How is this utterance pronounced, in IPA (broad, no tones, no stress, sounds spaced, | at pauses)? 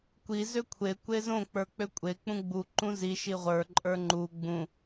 kʷ i z ø kʷʰ e kʷ e z õ k͡p ə˞ k͡p ø kʷʼ e k͡p ũ ɡ͡b u ǃ ũ z i ʃ i ʁʷ ə˞ ǃʼ ə˞ ŋ͡ǃ u ɡ͡b ũ